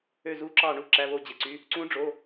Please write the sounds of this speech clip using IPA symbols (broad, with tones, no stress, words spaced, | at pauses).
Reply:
ø˧˩zu˨˦ǁɑ˧˩ ɳu˧˩ǁæ˩˧˩ βo˧˩d͡ʑe˩ǀy˩˧˩ | ǀũ˨˦ɖ͡ʐo˩˧˩